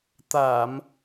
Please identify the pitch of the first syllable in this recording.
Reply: low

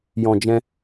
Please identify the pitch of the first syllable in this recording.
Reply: low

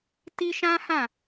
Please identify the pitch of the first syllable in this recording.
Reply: high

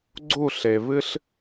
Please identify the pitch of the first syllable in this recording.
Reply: falling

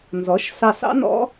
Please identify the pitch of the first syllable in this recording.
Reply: rising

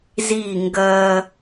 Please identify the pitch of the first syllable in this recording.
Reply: falling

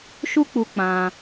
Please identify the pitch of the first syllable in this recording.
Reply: high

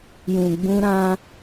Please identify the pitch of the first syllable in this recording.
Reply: low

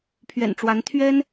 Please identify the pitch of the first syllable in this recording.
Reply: low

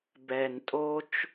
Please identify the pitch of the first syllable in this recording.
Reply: low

